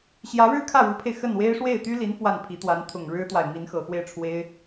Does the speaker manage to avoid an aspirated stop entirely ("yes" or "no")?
no